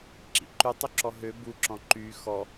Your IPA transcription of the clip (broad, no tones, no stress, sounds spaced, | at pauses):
ǁ ḭ ǃ ʉ tˤ u ǁ ɔ ɦ ø b u ǁ ɔ̃ ǃ yː x ɔ